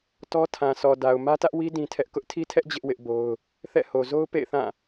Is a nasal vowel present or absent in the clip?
present